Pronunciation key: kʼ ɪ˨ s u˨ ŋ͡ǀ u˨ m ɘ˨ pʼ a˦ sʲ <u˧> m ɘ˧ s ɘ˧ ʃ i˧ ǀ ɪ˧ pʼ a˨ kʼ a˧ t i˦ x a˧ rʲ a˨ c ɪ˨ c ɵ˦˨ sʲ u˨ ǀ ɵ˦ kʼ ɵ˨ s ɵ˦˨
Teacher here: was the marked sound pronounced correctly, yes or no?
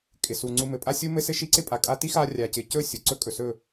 yes